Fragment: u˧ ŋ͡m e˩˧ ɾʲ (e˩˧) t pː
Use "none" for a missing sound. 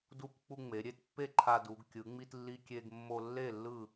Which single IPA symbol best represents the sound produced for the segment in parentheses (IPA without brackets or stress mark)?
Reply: e˥˨